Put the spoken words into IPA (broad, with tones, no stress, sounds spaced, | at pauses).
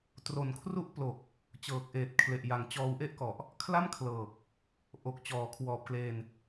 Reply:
t r o˨˩ n kʰ r u˦˥ ʔ p l o˨˩ k̚ | t͡ɕ ɤː˨˩ k̚ ʔ eː˨˩ t̚ kʰ l e˨˩ ʔ j a˨˩ ŋ t͡ɕ ɔː˧ w ʔ e˥˩ ʔ k ɔ˨˩ ʔ | kʰ l a˥˩ m kʰ l ɤː˨˩ k̚ | ʔ o˨˩ k̚ t͡ɕ ɔː˨˩ kʰ w ɔː˨˩ p̚ k l eː˧ n